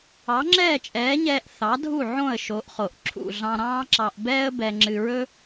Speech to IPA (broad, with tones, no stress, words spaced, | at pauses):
ɑ˩˥ŋ͡ǁɛː˥˩t͡ʃʼɛː˩˥ɲɛː˧ʔ θɑ˩˥dʱu˥˩ ʕõ˥˩ə̯ʃo˩˥ʔ χo˩ʔǁʰṵ˥˩ ɮɑ̃˧ɾɑ̃ː˥ǁɑ˧ʔ bɛː˥ə̯bɛ˧ŋ͡ǁɨ˧ɹɵ˥